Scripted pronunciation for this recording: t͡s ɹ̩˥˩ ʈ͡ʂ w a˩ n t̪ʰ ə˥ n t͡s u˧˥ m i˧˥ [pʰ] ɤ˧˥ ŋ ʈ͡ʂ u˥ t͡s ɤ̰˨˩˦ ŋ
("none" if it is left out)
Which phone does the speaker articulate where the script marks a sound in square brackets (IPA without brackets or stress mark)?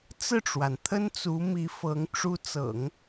f